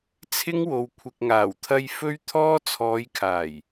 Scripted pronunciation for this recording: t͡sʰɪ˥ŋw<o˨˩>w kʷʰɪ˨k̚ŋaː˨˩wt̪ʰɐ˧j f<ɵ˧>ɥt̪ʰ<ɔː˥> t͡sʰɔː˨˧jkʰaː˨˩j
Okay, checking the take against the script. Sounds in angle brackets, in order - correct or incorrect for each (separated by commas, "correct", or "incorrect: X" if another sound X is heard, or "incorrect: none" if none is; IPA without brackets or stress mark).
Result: incorrect: o˨, incorrect: ɵ˥, correct